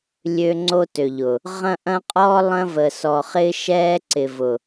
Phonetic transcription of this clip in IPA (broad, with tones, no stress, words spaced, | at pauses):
lʲø˦ŋ͡ǀo˦tø˨ʎʊ˨ | ʁɐ̃˦ʔɐ̃˦qʼɔː˦ lˠɐ̃˦və˨sɔ˨χɪː˦ ʃɛː˦ǀɪ˨vʊ˨